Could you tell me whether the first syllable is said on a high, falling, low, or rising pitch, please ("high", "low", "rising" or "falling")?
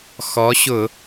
rising